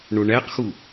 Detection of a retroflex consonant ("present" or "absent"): present